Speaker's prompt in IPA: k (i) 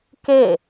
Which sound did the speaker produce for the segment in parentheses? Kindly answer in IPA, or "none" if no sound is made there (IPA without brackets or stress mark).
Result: e